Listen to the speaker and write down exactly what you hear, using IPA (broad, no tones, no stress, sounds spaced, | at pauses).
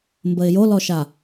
m b ə ɪ̯ j o l ɔ ʃ a